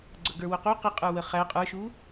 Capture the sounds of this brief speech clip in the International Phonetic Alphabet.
ɡ͡ǀʌɡə˞wʊqu qɪ qʼə˞wəχæ qʼə˞ʃu

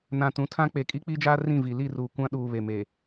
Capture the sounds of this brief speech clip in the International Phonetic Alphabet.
nã˨tũ˨˦tʰã˦ k͡pe˨kʼi˦k͡pi˦d͡ʒaː˦ rĩ˦˨vi˨ li˦˨ruː˨ kʷã˦ɗuː˨ βe˨me˨

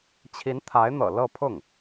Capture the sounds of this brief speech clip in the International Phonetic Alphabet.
t͡ɕʰi˧˥nt̪ʰa˧˥ɪ̯n̪ɤ̰˨˩ lɤ˥˧pʰʊ˥˩ŋ

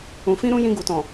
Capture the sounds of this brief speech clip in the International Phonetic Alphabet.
ũ˨fĩ˧ɾũ˧ jĩ˧ɡu˨tɔ̃˨

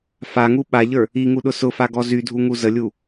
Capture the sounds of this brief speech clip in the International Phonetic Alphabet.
faŋu ɓaʎə˞ | iŋuɗʊ sʊfaɡɔ zydʱuŋu zəlʲu

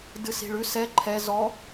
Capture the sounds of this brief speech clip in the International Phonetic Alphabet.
dɨsi̤ɭʉs ɛ ǃʰɛ zɔ

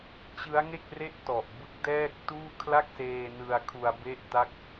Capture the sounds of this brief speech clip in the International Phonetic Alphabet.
t͡ɕɯ˦˥a̯ŋe˥˩k̚re˥˩ʔ tɔ˨˩ʔ bɯ˦˥k̚dɛː˥˩k̚tuː˥˩ kʰla˥˩k̚seː˧ nɯ˧a̯kʰu˧a̯ be˥˩ʔta˥˩k̚

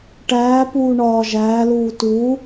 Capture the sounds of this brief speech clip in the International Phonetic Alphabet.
ʈæː puːɳɒː ʒæːluː tuː

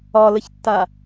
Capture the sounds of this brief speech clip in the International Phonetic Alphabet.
ɒləçtːa

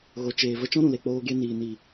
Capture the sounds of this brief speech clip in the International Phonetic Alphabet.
ɣo˨t͡ʃeː˨ və˧t͡ʃɔ̃˦ɾũ˨le˨ k͡poː˧ɡe˧ niː˨ ni˨

